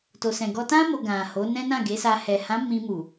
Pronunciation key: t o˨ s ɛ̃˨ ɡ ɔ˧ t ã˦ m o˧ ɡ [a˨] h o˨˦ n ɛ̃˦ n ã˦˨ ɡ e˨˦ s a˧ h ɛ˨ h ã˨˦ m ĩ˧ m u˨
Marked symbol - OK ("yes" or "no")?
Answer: no